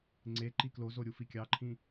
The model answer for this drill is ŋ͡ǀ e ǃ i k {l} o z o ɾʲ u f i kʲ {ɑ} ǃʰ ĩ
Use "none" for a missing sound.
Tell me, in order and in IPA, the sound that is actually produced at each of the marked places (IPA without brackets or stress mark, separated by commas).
l, ɑ